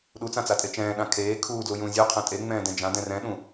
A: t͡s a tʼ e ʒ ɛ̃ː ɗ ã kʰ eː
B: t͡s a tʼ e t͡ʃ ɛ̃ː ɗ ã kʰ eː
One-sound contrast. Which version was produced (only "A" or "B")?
B